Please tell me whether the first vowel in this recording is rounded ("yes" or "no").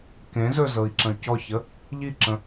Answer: no